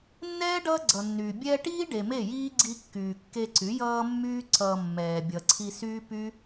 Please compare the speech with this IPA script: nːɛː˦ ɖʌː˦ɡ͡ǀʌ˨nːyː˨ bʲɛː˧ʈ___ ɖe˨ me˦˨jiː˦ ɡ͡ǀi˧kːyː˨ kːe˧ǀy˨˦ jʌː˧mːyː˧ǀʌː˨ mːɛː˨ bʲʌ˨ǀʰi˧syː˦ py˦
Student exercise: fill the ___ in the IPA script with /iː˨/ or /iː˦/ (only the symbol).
iː˦